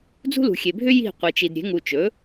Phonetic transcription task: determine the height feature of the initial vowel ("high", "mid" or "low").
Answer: high